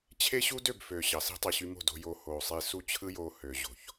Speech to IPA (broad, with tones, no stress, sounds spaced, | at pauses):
t͡ɕʰ e˦ ɕ u˦ d ø˦˨ b f ø˨ ɕ ɑ˨ s i̤˦ tˤ i˨ ɕ y˧ m o̤˦˨ d o̤˧ j o˧ h oː˨ sˤ i˧ s u˦˨ t͡ɕʰ ɯ˦ j oː˧ h ø˨ ʑ o̤˨ ç